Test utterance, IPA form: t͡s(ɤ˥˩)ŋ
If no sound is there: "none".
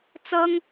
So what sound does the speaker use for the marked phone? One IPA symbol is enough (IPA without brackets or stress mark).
ɤ˥